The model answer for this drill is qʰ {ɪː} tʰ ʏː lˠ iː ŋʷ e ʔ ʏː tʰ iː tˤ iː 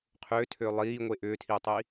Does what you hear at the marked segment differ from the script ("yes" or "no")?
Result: yes